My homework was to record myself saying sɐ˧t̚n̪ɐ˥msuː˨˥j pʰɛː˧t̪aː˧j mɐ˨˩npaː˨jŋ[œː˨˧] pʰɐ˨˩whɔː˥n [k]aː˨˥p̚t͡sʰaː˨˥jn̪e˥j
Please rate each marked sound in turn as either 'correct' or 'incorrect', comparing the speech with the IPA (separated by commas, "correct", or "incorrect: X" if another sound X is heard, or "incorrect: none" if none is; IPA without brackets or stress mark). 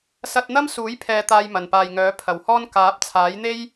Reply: incorrect: œː˨˥, correct